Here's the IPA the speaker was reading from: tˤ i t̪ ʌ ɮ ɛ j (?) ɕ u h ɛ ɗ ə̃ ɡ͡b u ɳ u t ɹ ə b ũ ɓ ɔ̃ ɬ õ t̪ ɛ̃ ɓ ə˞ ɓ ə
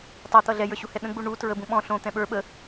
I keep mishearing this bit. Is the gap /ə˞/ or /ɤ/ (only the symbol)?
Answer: ə˞